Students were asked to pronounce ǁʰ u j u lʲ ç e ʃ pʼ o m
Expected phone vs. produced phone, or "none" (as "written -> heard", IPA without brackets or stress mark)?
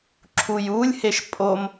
ç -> h